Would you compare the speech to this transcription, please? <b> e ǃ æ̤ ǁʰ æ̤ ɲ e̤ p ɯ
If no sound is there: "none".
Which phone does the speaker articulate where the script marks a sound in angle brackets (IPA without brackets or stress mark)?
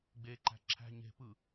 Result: ɡ͡b